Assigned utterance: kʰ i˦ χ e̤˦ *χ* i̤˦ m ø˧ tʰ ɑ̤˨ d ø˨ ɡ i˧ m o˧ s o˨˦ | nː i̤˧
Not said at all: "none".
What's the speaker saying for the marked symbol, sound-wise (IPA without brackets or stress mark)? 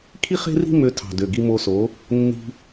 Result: r